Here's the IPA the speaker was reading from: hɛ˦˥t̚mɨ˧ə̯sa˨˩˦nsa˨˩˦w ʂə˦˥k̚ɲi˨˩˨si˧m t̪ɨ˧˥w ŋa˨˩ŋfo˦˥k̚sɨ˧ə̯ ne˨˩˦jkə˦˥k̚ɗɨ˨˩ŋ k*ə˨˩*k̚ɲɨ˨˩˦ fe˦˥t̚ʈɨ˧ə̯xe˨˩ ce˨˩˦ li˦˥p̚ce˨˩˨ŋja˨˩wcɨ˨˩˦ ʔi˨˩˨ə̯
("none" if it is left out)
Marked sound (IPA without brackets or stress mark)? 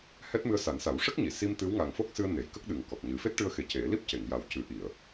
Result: ɔ˨˩